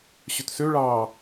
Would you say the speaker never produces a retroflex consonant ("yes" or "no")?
no